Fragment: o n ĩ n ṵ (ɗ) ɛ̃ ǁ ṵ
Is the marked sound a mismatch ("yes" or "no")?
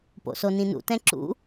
yes